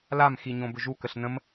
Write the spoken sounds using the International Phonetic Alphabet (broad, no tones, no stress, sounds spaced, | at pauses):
l a m x i ɲ õ b ʏ ʒ u k ə ɬ n ə̃ m